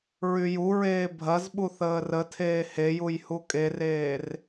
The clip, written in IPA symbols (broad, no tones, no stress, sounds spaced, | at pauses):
ɹ y j u ɹ eː bʱ ɐ z ɓ u θ əː r ə tʰ eː h e j u j h u kʼ e r eː r